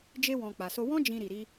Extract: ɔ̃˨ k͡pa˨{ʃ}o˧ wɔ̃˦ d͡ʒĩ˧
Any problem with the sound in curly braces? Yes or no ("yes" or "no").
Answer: yes